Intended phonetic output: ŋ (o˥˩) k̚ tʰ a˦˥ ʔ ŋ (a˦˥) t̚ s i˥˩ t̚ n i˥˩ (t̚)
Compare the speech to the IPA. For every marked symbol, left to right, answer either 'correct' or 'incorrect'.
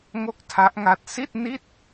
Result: correct, correct, correct

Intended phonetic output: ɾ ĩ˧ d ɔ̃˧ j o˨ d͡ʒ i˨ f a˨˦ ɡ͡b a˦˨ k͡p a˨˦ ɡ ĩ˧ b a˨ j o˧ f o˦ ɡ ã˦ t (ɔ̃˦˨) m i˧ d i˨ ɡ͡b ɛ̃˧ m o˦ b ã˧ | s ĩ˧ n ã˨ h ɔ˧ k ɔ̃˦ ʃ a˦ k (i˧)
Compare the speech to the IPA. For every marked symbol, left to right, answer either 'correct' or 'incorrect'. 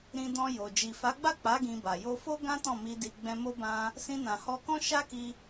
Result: correct, correct

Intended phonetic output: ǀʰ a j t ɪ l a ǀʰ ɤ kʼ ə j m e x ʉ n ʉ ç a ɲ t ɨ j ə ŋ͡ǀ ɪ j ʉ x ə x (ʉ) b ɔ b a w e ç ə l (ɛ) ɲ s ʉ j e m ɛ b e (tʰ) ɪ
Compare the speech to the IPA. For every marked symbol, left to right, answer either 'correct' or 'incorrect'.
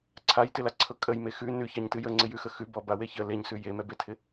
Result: correct, incorrect: e, correct

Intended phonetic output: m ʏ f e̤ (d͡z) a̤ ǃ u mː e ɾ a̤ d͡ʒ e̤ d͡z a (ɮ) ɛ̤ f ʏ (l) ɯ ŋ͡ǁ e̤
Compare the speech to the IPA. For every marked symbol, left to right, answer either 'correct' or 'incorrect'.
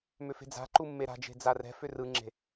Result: correct, incorrect: r, incorrect: r

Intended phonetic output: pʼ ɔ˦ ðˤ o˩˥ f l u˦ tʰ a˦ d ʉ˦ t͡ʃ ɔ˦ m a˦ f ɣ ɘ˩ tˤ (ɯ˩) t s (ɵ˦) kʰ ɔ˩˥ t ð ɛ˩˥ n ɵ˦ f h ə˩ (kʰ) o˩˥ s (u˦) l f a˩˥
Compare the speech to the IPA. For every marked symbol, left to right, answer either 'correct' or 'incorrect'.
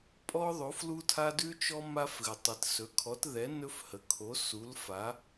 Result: correct, incorrect: ɵ˩˥, correct, incorrect: u˩˥

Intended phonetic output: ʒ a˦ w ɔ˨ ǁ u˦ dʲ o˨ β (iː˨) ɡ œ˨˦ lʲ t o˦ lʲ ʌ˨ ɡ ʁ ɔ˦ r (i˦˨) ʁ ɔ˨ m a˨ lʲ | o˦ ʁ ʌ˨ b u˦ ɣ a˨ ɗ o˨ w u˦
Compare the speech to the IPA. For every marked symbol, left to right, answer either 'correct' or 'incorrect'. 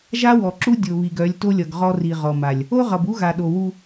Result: incorrect: i˨, incorrect: i˨

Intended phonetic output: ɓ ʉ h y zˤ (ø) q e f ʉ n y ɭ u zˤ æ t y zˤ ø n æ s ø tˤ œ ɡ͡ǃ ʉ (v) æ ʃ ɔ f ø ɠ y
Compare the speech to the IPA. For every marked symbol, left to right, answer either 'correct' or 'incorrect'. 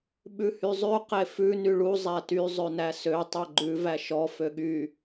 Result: incorrect: ʉ, correct

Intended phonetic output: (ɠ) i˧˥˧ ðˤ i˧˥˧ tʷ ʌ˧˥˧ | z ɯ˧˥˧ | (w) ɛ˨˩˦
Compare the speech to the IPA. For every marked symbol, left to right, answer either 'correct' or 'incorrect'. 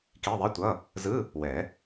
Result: incorrect: k, correct

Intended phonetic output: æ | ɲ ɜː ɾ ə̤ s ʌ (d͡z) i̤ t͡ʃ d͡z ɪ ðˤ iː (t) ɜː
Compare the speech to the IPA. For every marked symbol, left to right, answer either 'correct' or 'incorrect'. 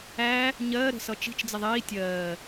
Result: incorrect: t͡ʃ, incorrect: tʲ

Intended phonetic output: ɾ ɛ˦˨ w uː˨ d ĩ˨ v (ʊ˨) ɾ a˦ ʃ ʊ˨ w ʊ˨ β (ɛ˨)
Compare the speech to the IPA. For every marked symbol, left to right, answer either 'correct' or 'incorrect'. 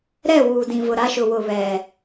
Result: correct, correct

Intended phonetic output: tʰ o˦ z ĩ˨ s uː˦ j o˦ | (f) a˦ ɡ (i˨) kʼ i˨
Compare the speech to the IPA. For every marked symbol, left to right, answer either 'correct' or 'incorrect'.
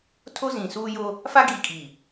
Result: correct, correct

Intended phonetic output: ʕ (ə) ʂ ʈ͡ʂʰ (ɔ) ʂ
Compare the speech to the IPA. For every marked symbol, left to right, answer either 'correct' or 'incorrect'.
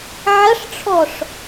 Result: incorrect: ɐ, correct

